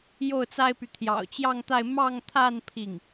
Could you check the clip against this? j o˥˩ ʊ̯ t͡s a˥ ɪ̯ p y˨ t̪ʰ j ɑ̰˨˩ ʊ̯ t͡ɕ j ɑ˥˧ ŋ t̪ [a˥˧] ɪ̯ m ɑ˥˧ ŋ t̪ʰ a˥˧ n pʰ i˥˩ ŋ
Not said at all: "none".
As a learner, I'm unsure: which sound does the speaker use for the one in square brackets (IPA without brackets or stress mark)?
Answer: a˥˧